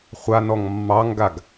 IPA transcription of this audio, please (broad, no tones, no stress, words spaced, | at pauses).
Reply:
χʷanɔŋ mːɑŋɡaɡ